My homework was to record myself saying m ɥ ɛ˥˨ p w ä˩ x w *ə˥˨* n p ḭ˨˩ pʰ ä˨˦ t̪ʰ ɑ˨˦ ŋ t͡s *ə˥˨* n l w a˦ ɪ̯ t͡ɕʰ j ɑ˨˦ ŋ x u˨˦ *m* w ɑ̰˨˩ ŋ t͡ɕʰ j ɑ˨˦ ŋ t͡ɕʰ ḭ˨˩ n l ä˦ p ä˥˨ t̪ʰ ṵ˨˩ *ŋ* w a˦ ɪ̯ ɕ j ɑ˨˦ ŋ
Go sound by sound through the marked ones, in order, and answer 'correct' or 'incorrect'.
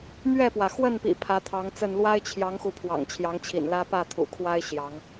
correct, correct, incorrect, incorrect

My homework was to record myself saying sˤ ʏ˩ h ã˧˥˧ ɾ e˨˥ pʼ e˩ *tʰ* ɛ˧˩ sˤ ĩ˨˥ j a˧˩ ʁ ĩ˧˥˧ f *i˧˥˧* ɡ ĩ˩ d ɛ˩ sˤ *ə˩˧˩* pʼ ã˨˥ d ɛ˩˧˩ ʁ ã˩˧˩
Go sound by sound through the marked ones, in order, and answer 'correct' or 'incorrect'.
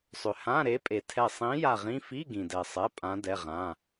correct, correct, incorrect

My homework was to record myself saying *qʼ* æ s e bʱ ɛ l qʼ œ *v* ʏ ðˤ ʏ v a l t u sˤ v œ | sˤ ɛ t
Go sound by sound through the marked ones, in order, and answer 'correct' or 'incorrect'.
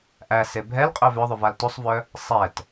incorrect, correct

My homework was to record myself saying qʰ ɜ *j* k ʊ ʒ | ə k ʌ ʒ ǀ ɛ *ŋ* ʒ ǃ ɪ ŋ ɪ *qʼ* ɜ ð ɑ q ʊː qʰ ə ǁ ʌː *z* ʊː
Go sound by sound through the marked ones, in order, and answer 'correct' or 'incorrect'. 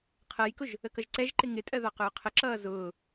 correct, incorrect, incorrect, correct

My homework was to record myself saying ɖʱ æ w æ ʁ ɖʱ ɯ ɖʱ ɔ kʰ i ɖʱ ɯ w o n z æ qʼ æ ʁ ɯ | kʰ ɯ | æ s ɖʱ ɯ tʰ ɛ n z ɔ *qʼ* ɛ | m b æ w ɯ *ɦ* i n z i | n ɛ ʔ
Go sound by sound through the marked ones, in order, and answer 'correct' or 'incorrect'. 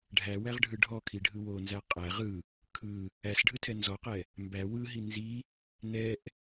incorrect, correct

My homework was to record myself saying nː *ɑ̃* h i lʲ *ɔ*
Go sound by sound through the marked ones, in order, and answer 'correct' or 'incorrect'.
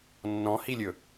incorrect, incorrect

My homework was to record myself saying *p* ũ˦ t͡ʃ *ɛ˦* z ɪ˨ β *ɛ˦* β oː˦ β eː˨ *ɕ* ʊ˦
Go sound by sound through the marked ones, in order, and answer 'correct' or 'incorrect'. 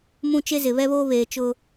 incorrect, incorrect, correct, incorrect

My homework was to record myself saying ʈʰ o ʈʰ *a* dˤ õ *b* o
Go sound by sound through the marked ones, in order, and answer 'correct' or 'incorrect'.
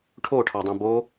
incorrect, correct

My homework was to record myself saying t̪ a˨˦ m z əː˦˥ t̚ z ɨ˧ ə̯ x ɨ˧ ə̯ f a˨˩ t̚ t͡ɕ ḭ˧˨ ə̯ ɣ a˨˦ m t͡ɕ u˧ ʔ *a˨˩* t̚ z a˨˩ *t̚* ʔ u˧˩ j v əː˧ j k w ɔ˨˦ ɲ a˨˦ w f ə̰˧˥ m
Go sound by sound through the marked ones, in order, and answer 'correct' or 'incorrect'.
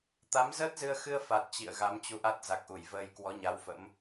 incorrect, incorrect

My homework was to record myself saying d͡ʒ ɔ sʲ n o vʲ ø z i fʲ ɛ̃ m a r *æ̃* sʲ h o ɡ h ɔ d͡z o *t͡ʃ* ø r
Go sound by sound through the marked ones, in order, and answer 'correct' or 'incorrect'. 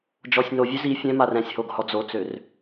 incorrect, incorrect

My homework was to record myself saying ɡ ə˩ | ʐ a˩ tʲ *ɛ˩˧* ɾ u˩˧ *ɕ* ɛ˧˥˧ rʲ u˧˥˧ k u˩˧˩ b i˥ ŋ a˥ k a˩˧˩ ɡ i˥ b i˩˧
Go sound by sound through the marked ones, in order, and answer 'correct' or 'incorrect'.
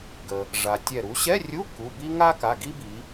incorrect, correct

